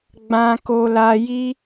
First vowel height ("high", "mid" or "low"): low